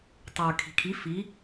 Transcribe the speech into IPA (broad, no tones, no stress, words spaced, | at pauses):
tˤə˞ kʰi̤kʰi fi